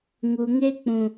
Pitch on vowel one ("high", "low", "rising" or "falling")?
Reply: low